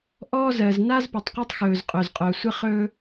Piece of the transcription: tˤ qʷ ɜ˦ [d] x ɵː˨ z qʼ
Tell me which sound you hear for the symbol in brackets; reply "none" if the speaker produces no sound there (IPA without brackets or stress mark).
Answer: tˤ